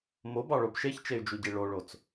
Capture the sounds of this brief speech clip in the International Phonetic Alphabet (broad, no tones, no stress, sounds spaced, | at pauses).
m o b ɑ ɭ o b ʃ e ç t͡ʃ e y̯ d͡ʒ u ɟ i ɭ o ɭ o t͡s